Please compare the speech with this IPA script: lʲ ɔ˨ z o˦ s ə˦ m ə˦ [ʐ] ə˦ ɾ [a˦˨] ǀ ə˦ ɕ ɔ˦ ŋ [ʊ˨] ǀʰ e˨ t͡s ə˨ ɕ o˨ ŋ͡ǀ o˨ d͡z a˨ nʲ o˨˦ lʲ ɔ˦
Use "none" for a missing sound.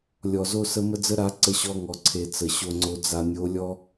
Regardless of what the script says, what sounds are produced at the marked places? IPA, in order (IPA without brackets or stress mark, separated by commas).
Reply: d͡z, a˨˦, ɔ˨